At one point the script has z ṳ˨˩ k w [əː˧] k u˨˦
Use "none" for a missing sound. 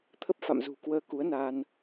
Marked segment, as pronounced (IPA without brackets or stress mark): əː˧